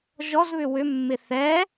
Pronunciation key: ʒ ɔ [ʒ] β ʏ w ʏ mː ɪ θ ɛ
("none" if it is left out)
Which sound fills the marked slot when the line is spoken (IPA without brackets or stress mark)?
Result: z